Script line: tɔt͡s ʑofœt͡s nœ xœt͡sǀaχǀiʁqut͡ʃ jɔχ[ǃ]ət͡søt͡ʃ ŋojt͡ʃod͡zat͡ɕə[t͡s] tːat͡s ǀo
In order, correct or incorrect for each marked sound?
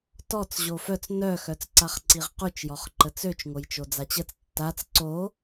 correct, correct

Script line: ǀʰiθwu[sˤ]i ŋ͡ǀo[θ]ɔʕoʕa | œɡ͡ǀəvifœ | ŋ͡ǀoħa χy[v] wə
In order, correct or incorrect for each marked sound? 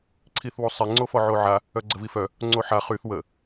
correct, incorrect, incorrect

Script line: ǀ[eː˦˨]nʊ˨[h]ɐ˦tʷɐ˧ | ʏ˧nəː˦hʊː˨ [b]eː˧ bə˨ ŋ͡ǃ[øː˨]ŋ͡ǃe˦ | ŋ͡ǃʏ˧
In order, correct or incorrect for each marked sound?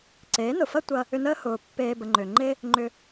incorrect, incorrect, incorrect, incorrect

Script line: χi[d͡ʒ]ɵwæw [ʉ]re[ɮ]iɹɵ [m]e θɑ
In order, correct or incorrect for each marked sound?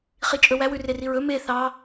incorrect, correct, incorrect, correct

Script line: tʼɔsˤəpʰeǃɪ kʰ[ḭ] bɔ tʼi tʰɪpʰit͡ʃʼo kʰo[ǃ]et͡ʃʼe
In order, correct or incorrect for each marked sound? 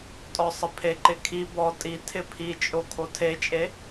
incorrect, incorrect

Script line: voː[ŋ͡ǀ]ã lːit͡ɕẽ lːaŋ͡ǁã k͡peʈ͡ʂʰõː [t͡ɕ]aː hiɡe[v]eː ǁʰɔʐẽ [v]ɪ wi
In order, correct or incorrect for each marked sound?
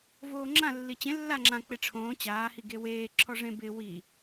incorrect, correct, incorrect, incorrect

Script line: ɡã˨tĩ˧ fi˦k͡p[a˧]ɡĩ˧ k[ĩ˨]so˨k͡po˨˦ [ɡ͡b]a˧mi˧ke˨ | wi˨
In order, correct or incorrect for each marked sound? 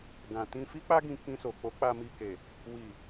incorrect, incorrect, incorrect

